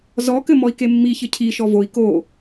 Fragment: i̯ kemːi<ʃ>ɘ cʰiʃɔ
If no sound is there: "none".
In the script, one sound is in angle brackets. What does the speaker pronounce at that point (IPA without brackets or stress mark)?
ç